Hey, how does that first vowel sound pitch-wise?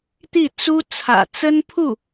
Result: falling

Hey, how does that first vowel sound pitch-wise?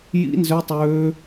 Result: high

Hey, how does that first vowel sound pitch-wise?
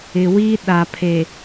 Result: low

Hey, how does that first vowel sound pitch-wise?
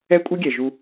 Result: high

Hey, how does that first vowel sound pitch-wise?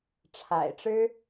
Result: low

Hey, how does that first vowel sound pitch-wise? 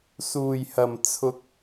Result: low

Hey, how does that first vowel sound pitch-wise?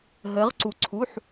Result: rising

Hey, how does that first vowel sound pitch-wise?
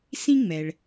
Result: high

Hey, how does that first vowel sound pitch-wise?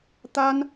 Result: high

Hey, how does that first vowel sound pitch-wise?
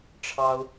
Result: high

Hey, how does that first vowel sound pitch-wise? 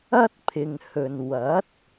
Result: high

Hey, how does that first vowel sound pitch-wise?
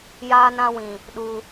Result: high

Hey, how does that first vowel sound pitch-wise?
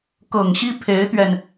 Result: low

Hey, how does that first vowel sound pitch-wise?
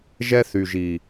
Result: high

